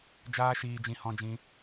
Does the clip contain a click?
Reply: no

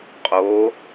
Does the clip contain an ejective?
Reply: yes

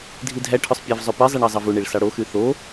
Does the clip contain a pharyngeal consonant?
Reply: no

